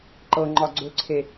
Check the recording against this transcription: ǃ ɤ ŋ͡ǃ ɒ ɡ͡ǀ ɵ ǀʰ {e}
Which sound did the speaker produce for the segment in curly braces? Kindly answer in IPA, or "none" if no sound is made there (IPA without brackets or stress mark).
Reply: e